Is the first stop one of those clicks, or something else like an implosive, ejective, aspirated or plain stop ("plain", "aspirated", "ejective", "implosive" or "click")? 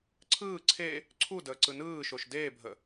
click